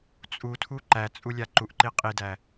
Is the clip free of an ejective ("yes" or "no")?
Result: no